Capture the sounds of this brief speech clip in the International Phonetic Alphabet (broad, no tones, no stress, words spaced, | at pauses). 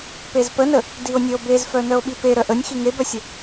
pezpənə | dio̯nʲœo̯bezfœ nœo̯ɓipe ɾœʔənʲ xiŋebœsʲə